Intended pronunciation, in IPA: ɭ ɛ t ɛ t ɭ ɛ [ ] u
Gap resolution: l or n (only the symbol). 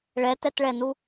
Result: n